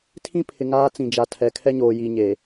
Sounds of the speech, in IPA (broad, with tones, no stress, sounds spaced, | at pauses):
tʰ ĩ˦ pʰ ɪ˨ ŋ aː˦ t͡s ĩ˨ d͡ʒ a˨ tʰ ɛ˨ kʰ ɛ˦ ɲ oː˨ j i˨ ɲ e˨